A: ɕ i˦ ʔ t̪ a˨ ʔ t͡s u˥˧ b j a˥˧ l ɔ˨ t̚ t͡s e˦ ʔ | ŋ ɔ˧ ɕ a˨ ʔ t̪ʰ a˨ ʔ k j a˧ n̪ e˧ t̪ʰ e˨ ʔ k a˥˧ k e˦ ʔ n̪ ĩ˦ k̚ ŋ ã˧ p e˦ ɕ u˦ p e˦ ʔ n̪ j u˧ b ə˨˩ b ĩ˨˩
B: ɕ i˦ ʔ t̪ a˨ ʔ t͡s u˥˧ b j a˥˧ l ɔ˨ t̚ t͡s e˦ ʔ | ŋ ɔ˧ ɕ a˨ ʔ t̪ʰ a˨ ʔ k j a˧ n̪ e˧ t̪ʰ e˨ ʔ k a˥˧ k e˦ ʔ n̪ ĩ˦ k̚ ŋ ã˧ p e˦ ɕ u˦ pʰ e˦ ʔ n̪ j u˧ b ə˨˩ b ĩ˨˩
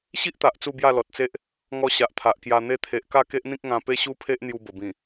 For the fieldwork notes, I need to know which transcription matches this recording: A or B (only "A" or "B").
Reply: B